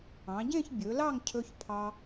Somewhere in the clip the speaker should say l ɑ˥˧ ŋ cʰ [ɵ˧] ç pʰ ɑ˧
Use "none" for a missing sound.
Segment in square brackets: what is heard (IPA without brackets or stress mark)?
ɵ˧